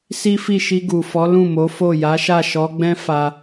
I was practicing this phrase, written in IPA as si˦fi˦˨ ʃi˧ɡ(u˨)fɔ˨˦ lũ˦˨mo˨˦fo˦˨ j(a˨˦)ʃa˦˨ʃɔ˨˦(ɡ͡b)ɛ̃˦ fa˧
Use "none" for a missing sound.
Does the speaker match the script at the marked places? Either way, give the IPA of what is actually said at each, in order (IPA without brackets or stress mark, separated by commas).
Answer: u˨, a˨˦, ɡ͡b